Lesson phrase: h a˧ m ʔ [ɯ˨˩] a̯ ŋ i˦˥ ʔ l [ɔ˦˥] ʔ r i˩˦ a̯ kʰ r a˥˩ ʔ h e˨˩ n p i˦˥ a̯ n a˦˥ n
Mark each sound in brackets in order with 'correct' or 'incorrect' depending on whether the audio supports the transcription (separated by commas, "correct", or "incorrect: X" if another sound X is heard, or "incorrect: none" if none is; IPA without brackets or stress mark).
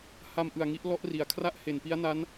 correct, correct